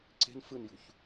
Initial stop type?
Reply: click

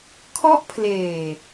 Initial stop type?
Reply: aspirated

